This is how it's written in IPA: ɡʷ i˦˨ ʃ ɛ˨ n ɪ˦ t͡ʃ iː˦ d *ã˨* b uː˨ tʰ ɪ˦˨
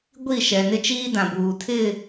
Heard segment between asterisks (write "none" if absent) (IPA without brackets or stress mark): ã˨